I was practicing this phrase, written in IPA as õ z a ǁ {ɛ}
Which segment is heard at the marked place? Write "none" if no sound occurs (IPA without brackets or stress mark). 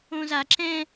ɛ̃